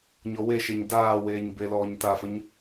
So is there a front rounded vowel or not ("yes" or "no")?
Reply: no